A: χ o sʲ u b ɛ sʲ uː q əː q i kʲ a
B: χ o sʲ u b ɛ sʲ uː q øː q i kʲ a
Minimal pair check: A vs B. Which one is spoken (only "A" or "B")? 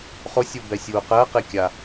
A